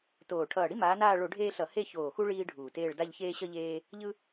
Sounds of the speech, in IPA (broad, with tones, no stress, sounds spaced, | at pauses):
t oː˨˩ ʈʰ ʌː˨˩ ɽ i˦ m aː˨˦ n aː˦˨ ɭ o˧˩˧ ɖʱ eː˦ ɬ ʌ˧˩˧ h e˦˨ ç oː˨˩ x u˦ ɭ iː˦ ɖʱ uː˨˩ t eː˦˨ ɭ d a˦˨ ʎ ç eː˦ ɕ ʌ˦ ʎ eː˦ | ʎ ɯ˦